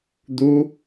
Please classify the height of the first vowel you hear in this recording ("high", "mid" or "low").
high